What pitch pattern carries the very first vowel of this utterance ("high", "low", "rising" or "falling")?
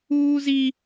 high